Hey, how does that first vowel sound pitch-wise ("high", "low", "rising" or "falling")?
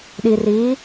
low